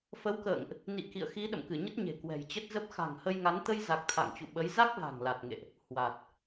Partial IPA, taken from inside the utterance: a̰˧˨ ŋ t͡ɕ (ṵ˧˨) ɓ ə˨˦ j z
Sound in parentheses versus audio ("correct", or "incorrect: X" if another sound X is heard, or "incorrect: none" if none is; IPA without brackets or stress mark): correct